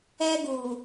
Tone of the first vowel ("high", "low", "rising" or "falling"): high